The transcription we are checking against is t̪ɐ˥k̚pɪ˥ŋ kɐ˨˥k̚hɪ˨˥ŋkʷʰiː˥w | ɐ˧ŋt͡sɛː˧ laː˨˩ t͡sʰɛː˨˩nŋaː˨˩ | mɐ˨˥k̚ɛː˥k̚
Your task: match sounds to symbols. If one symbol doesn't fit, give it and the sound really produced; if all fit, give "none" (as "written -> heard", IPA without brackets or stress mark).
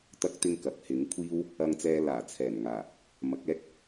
p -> t̪